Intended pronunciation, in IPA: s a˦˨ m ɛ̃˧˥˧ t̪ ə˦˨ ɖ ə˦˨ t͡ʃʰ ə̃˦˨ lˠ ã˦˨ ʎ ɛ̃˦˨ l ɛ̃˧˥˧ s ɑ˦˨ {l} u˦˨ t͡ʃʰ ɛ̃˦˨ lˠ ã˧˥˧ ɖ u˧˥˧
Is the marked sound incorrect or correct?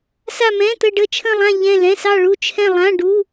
incorrect